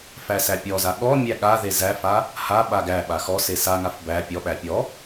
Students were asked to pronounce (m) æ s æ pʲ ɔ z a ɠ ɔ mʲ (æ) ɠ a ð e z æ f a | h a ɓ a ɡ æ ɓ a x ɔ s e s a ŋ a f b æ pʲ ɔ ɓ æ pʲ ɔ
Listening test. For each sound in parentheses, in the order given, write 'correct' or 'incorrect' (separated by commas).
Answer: incorrect, correct